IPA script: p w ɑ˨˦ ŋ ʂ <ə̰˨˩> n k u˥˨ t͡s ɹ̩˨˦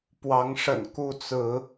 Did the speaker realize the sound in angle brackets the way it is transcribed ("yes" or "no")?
yes